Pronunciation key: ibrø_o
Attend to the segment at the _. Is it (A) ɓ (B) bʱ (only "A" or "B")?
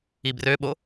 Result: A